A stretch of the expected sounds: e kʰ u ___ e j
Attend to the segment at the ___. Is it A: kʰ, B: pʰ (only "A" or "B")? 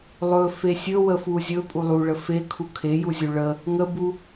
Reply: A